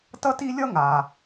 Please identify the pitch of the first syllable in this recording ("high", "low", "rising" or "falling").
high